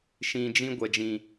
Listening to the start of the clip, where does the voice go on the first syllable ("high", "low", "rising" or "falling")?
low